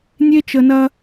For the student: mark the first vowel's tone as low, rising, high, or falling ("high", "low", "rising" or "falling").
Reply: high